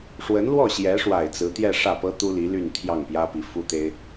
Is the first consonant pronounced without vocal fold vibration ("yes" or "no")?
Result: yes